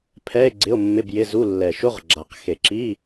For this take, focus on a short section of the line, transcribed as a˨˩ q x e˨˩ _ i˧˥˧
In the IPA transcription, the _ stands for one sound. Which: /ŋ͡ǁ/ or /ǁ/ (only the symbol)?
ǁ